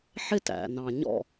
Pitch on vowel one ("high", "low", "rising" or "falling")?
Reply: high